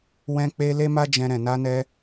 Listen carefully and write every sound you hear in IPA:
w ɛ̃˧ k͡p e˧ l e˦ m a˦ d͡ʒ ɛ̃˧ ɾ ɛ̃˨ n a˧ n ɛ˧

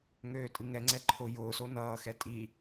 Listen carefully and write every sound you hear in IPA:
ŋ øː tʼ ɨ ŋ ɛ ŋ͡ǀ ɛ ǃʰ ʊ j ʊː s o n ʌː x ɛ tʼ i

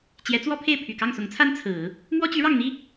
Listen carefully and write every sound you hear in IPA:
t͡ɕ j ɛ˧˥ t͡s w ɔ˥ pʰ e˥˩ ɪ̯ pʰ y˨˩ k ɑ˥˩ ŋ s ʊ˧˥ ŋ t͡sʰ a˥ n t͡sʰ ɹ̩˨˩˦ | m w ɔ˥ t͡ɕ y˧˥ ɻ ɑ˥˩ ŋ n̪ i˥

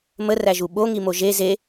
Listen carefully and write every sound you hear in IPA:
m ə r æ ʒ u ɓ o ŋ i m o ʒ e z e

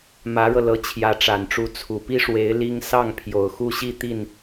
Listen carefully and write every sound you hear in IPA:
m ä˧˥ ɻ ɤ˧ l ɤ˧˥ t͡ɕʰ j ä˧˥ ʈ͡ʂ a˨˩ n ʈ͡ʂ u˧˥ t͡sʰ u˨˩ p i˥ ʂ w e˧˥ ɪ̯ l i˥ ŋ s ɑ˥˩ ŋ pʰ j o˨˩ ʊ̯ x u˥˧ ɕ i˥˧ t̪ i˥˩ n

